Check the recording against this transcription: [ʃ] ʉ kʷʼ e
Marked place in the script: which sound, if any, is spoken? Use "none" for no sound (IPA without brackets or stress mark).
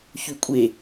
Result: ç